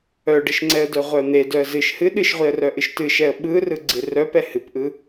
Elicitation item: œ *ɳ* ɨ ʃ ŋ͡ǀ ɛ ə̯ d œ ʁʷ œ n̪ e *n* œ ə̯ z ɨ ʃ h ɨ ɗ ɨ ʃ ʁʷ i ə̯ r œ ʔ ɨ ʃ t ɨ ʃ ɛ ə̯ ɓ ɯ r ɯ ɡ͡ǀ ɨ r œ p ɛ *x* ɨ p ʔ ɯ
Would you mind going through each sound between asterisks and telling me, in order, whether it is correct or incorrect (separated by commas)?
incorrect, incorrect, incorrect